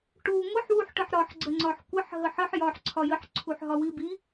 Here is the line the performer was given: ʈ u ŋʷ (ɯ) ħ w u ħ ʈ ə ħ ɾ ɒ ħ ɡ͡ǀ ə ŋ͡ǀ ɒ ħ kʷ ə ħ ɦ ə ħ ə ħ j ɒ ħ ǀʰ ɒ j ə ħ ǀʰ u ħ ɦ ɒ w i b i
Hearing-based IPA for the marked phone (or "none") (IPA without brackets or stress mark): ə